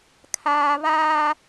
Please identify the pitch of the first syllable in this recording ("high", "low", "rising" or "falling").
high